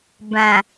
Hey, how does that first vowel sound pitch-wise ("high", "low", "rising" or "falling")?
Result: low